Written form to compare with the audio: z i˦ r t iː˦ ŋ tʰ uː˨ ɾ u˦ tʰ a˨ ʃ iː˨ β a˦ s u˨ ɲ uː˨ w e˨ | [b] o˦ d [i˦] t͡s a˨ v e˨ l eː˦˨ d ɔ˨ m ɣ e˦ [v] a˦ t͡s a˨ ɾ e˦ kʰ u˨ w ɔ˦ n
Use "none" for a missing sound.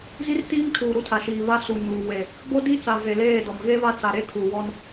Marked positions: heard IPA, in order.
b, i˦, β

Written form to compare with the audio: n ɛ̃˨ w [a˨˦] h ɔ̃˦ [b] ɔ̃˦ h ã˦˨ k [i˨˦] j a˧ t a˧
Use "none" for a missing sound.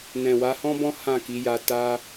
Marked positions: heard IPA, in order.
a˨˦, b, i˨˦

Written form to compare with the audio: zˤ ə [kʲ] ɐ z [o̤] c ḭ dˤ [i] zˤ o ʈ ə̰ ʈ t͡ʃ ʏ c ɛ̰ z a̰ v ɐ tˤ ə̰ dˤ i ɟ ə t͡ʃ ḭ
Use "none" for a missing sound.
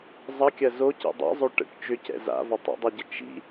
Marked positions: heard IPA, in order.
kʲ, o, ḭ

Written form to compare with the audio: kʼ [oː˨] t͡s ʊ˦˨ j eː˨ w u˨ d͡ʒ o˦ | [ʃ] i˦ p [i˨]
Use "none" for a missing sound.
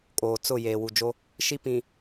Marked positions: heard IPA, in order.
oː˨, ʃ, ĩ˨

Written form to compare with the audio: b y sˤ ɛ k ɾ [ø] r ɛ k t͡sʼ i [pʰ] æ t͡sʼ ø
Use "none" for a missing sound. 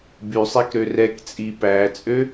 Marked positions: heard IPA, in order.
ø, p

